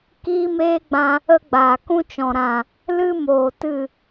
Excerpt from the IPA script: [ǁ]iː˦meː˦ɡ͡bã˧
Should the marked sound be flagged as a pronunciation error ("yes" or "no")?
yes